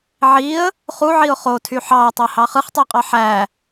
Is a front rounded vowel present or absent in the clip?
present